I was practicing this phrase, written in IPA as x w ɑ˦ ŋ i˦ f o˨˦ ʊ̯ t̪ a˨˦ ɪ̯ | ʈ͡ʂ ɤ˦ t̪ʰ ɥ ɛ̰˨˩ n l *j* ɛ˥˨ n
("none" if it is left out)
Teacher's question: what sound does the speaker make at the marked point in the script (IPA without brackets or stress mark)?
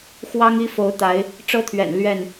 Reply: ɥ